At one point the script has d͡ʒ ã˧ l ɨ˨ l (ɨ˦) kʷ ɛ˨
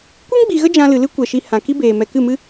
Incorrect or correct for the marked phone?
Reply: correct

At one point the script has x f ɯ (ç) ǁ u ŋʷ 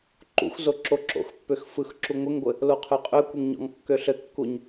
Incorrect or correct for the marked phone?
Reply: incorrect: x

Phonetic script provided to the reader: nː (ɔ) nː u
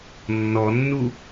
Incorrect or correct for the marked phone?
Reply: correct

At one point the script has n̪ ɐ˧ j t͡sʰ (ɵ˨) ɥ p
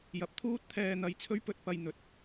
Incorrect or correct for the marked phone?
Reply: incorrect: ɵ˥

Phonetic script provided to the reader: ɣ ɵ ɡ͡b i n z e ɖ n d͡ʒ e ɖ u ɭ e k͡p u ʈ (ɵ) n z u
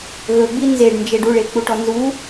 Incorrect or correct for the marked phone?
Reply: incorrect: ɔ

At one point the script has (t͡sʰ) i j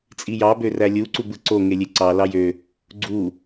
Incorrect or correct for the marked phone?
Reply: incorrect: t͡sʼ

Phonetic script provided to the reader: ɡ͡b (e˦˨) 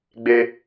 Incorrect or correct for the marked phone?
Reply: incorrect: e˦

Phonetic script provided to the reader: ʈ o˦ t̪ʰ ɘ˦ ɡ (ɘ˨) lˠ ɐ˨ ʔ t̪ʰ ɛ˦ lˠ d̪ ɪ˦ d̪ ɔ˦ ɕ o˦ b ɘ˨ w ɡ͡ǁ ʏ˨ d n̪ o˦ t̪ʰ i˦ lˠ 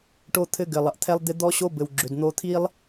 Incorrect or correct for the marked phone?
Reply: correct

